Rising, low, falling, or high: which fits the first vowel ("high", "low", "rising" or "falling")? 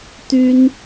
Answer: high